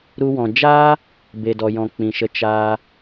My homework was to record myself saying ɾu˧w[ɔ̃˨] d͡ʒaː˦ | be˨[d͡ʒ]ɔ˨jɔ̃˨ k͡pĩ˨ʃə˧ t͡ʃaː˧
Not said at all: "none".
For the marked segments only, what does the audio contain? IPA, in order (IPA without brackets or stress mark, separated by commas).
ɔ̃˨, d